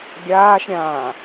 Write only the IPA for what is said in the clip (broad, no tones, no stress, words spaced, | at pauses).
ɡʲaːʃɾʲãː